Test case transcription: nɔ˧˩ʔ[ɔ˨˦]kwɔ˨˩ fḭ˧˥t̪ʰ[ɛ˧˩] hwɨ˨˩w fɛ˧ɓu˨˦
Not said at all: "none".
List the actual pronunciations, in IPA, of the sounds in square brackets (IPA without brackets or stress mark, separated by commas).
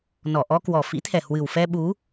ɔ˧, ɛ˨˩